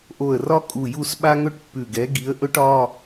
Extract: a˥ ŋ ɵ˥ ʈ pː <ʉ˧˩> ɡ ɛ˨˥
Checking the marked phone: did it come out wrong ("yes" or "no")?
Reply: no